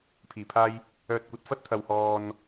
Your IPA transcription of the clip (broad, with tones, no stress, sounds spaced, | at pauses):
pʰ iː˨˩ pʰ aː˧ j | œː˨ t̚ kʷ ɐ˨˥ t̚ f ɐ˥ t̚ t̪ʰ ɐ˨ w h ɔː˧ n